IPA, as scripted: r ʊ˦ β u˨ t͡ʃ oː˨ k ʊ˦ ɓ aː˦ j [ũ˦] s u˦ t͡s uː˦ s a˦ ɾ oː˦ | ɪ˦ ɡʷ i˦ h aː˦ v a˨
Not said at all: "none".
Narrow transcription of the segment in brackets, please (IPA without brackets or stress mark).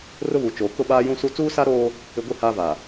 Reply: ũ˦